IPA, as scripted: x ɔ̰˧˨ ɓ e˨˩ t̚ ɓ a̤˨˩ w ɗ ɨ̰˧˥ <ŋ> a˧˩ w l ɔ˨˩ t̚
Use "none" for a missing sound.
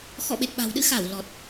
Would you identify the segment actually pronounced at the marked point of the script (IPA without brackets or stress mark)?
x